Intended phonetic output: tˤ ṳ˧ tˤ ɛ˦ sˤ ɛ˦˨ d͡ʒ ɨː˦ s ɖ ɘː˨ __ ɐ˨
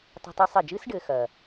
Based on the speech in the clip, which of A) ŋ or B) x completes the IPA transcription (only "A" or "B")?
B